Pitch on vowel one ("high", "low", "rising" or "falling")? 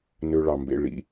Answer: high